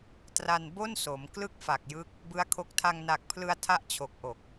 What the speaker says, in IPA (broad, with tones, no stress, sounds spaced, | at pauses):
t r a˧ n b o˥˩ n s o˩˦ m k l ɯ˥˩ k̚ f a˨˩ k̚ j ɯ˦˥ k̚ | b ɯ˦˥ a̯ kʰ o˦˥ k̚ tʰ a˧ ŋ n a˨˩ k̚ pʰ l ɯ˧ a̯ tʰ a˥˩ ʔ t͡ɕʰ o˨˩ k̚ ʔ o˨˩ k̚